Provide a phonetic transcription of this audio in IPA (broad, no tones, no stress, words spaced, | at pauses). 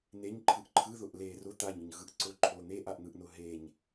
neɲǃʰɯʔ ǃʰɯðʊʔ le rʊ t̪aɲʊɲɣɯʔ ǀʊǃʰo n̪eʔaʔn̪ɯʔnʊ ɦeɲ